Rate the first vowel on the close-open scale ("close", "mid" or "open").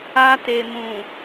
open